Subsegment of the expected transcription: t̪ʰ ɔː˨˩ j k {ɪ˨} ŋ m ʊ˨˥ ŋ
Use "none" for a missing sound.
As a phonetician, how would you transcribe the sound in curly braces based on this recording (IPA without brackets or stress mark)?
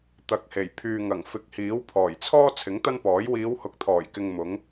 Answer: ɪ˨